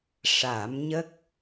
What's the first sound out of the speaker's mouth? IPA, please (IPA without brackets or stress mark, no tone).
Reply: ʂ